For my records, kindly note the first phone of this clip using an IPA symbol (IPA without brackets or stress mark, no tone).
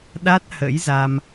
ɗ